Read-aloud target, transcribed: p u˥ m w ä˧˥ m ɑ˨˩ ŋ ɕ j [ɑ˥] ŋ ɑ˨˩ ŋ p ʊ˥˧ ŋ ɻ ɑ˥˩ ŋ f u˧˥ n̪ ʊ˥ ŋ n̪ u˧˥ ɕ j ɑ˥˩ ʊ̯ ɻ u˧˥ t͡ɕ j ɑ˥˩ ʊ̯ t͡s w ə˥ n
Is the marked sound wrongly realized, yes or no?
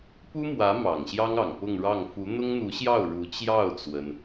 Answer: no